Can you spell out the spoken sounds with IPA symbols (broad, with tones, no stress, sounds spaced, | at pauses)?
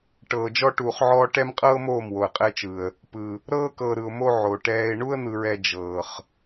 ʈ ɤː˨ d͡ʒ ɔ˦ ʈ uː˨ χ ʕ ɔː˦ ʈ ɛ˦ m qʼ ɤː˦ m oː˦˨ m w o˨ ə̯ qʼ ɛ˦ t͡ʃ ɯ˨ ə̯ | p ɯ˨ | ɾ ɤː˦ k ɤː˨ ɾ ɯ˨ ʊ̯ m o˦ ʕ o˨ ʈ ɛː˦ ɪ̯ ɳ u˦ ə̯ n̪ ɯ˨ ɹ ɛ˨ d͡ʒ ɤː˨ χ